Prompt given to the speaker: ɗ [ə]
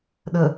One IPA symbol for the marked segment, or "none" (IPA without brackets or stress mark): ə